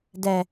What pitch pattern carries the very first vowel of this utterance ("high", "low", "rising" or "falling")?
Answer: low